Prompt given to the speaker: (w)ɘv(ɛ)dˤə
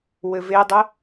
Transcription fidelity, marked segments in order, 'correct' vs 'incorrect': correct, incorrect: e

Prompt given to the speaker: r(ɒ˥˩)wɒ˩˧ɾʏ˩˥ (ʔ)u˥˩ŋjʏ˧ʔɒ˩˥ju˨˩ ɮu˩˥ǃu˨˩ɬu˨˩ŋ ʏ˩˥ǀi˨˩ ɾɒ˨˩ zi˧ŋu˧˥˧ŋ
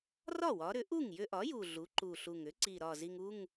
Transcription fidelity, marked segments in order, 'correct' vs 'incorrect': correct, correct

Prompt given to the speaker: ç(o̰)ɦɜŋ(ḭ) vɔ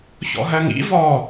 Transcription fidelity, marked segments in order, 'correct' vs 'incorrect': incorrect: ɔ̰, correct

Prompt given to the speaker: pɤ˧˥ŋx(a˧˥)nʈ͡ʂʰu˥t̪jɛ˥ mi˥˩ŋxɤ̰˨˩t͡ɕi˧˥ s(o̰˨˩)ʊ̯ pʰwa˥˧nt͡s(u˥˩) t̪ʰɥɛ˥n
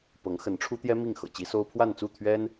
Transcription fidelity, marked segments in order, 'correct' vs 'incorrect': incorrect: ə˧˥, incorrect: o˥, correct

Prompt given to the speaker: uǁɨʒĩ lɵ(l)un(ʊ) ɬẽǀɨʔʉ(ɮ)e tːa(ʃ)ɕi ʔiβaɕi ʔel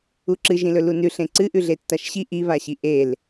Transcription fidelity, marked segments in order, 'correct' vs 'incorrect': correct, incorrect: ʉ, correct, correct

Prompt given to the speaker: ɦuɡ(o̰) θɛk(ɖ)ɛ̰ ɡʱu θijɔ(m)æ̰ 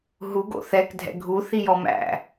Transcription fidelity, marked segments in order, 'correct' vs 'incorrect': correct, incorrect: dʱ, correct

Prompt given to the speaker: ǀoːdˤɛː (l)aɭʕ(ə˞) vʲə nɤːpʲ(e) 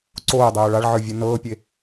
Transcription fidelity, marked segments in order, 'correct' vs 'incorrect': incorrect: ɭ, correct, correct

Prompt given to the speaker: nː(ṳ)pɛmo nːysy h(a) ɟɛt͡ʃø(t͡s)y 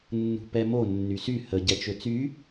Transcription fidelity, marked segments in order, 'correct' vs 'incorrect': correct, incorrect: ə, correct

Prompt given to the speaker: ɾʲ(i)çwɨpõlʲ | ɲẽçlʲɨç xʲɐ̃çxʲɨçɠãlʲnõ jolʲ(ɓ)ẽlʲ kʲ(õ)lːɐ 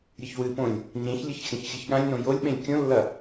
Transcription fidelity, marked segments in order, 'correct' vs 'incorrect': incorrect: ɨ, correct, correct

